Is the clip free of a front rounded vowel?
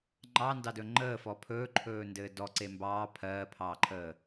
yes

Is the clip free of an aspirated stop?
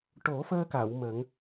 yes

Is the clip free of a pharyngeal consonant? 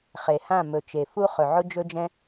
no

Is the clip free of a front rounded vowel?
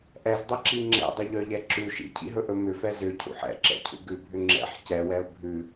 no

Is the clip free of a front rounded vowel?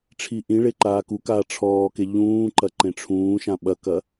yes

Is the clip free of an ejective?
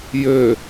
yes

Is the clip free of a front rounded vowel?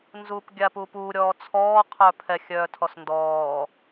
no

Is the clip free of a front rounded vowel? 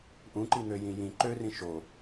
no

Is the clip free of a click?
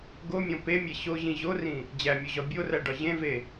yes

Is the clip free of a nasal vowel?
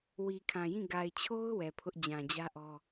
no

